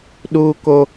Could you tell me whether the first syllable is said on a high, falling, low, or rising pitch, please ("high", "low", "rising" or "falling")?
high